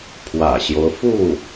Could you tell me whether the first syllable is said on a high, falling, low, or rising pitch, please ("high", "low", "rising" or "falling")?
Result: low